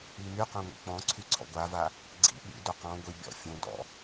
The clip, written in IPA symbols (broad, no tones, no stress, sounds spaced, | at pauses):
i m y q œ̃ ŋʷ ḭ k͡p ɔ̃ ǀʰ y ǀʰ ɔ̰ ɡʷ a v a | ɡ͡ǀ ḭ ɓ ḭ d o q ɔ̃ ɡʷ i bʲ ɔ̰ fʲ õ d ɔ̰